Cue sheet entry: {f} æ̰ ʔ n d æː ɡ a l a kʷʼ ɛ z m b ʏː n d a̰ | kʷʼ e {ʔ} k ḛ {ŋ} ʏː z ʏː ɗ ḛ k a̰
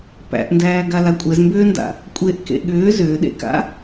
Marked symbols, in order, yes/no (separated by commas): no, yes, no